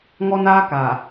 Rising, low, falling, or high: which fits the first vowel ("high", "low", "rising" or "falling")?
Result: high